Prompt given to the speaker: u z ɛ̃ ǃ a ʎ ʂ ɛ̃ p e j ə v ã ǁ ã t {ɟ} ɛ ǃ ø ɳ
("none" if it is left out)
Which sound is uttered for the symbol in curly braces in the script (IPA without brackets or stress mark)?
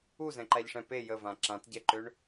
ɟ